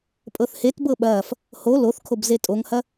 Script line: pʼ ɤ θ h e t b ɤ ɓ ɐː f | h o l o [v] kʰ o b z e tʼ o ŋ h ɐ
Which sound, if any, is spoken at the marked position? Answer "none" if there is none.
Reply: θ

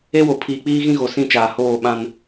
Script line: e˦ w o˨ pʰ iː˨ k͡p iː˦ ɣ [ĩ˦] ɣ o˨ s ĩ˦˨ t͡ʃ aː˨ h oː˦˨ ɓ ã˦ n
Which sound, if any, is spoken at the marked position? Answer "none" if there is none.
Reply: ĩ˦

